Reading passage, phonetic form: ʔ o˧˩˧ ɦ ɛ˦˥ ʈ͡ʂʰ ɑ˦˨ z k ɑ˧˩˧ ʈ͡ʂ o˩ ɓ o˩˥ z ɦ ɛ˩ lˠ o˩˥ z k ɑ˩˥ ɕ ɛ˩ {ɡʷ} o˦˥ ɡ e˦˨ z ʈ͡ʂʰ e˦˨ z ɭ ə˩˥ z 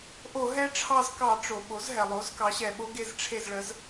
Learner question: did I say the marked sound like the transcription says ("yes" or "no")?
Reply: no